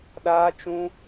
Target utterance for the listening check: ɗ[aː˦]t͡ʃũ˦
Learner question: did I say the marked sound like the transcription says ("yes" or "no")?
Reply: yes